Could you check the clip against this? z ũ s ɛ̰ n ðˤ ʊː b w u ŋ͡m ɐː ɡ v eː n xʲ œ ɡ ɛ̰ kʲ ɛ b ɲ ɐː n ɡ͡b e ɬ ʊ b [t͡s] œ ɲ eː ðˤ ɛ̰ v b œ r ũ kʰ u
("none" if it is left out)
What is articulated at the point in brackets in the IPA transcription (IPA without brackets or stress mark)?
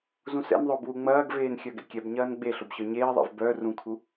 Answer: ɕ